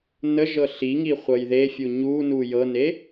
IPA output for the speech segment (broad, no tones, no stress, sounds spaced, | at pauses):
n ə ʒ ɤ ɬ i ŋ i χʷ ɤ j ð e fʲ u ɲ u n u j ɤ n e